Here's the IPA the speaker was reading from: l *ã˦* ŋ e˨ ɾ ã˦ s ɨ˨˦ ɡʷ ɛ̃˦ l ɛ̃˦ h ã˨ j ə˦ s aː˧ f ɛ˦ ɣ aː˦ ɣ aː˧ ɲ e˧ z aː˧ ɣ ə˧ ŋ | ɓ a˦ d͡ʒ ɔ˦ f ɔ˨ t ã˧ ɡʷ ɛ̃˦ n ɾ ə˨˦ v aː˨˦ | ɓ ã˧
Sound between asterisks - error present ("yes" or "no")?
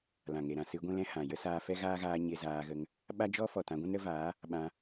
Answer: yes